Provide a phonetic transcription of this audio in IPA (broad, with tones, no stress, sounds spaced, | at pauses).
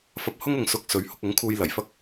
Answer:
f ɐ˧ p̚ h ʊ˥ ŋ ʊ˨ ŋ s ʊ˧ k̚ s ɵ˨˧ ɥ h ʊ˧ k̚ ʊ˨˥ ŋ kʰ uː˧ j l ɐ˨˩ j f ɐ˥ k̚